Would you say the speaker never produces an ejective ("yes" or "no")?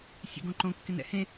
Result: yes